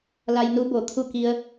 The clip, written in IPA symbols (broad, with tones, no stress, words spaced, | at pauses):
la˧j nu˧ bo˩˧ t̪ʰu˧˩ ki˧ə̯